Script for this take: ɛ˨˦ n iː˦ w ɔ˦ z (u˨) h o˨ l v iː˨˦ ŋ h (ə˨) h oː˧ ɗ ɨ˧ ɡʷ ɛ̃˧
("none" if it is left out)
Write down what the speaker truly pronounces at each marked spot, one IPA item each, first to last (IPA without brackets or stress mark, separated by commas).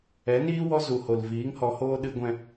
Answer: u˨, ɔ˨